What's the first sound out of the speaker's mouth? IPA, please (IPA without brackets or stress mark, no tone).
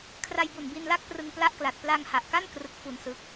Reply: kʰ